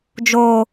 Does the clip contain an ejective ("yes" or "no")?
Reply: no